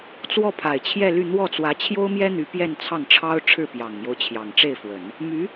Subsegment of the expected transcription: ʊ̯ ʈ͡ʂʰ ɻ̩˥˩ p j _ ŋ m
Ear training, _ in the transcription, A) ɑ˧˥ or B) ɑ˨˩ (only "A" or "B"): B